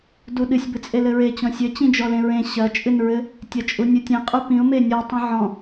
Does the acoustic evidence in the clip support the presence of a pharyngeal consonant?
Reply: yes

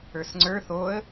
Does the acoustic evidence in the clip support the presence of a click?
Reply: yes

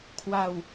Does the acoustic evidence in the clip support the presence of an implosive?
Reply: no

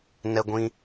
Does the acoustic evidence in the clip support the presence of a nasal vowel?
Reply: yes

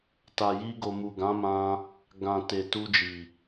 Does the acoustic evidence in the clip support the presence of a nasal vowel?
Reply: yes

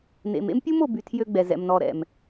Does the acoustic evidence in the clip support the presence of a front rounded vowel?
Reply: yes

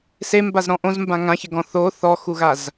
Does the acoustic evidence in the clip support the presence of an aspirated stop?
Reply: no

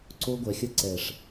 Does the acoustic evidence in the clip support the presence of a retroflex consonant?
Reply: yes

